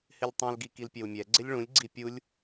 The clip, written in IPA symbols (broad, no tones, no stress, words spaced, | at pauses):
hɪlʲtˤũlɡi kilpʲɛwmʲɛɡ͡ǀɪlʲ ɭũlʲɡ͡ǀi pʲulʲ